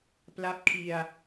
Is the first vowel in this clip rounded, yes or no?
no